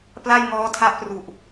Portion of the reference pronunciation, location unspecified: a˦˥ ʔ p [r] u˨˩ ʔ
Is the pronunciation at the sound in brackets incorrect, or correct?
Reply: correct